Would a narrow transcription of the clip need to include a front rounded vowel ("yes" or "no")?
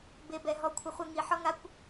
no